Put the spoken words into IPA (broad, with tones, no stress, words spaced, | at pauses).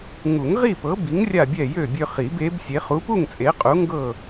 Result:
ŋu˨˩˦ŋʁi˥˨pɤ˨˥bi˨˥ŋ rʲa˥˨bʲɛ˥˨jø˥˨bʲø˦ χi˨˩˦be˨˥bsʲe˨˥χ u˨˥pu˥˨ŋt͡sʼe˨˥qʼu˨˥ ŋɡɤ˥˨